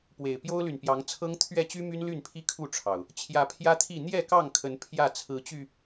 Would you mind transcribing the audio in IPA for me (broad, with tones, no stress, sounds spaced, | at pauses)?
p w e˨˩ ɪ̯ p j o˦ ʊ̯ l y˨ n p j ɑ˨˦ ŋ t͡sʰ ɤ˦ ŋ t̪ʰ ɥ ɛ˥˨ t͡ɕ y˦ m y˦ n l y˥˨ n pʰ i˦ kʰ u˥˨ ʈ͡ʂʰ ɑ˩ ʊ̯ | t͡ɕʰ j ä˨˦ pʰ j ä˦ t̪ʰ i˥˨ n̪ j ɛ˥˨ k ɑ˥˨ ŋ kʰ ə˨˦ n pʰ j ä˥˨ t͡sʰ ɹ̩˨˦ t͡ɕ y˧